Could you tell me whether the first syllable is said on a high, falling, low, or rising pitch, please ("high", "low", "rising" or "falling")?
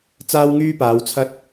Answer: high